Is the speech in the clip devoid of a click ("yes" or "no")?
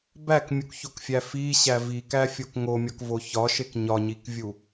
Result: yes